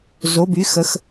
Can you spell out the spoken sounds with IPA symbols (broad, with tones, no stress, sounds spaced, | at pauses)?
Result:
z o˩˧ b y˩˧ x ə˩˧ x